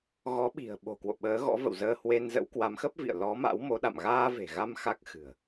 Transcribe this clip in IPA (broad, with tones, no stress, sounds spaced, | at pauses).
ɣ ɔ˨˦ ɓ i̤˨˩ ə̯ ɓ o̤˨˩ k w o̰˧˨ ɓ əː˨˦ ɣ ɔ̰˧˥ v ə̰˧˨ w z əː˧ h w e˧ n z ə̰˧˥ w k w a˨˦ m x ə˦˥ p̚ v ḭ˧˨ ə̯ l ɔ˨˦ m a̰˧˥ w m o˨˦ ɗ a̰˧˨ m ɣ aː˧ v e̤˨˩ ɣ a˧ m x a˦˥ k̚ x ɨ̤˨˩ ə̯